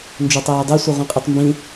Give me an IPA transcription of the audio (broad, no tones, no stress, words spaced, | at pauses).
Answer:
nd͡ʒotˤeːdˤe sʷɯʁʷĩqʼɯtˤmbĩ